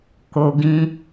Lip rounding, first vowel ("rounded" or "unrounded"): rounded